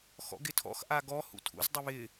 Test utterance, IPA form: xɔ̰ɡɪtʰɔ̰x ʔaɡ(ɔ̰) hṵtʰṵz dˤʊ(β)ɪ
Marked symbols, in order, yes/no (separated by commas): no, yes